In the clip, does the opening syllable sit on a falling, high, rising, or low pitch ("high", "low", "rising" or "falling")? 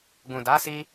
low